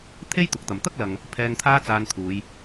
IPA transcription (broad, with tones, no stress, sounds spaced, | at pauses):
t̪ʰ e˥ j t̪ ʊ˨˥ k̚ t̪ ɐ˨ m t̪ ɐ˥ k̚ l ɐ˨ ŋ | pʰ ɛː˧ ŋ t̪ʰ aː˥ t͡s aː˧ n t̪ʰ uː˨˧ j